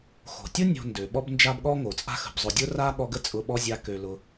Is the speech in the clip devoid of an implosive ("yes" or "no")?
no